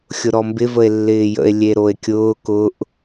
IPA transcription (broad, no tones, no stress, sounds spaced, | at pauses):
xʲ ʊ ɾ ɔ m b ɪ v ə e̯ lː ɪː j ə̰ e̯ lʲ e ɾ o e̯ kʲ ʊː k ʊ ʔ